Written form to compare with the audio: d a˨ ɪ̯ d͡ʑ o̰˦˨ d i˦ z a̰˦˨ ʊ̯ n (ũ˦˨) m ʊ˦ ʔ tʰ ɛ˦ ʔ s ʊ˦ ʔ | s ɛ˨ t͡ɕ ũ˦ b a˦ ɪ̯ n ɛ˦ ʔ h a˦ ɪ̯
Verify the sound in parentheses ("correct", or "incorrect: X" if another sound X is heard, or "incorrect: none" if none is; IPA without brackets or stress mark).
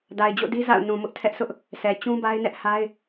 incorrect: ũ˨